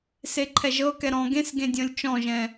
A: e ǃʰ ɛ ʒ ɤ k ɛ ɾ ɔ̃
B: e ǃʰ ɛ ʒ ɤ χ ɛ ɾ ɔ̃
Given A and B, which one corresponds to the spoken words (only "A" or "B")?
A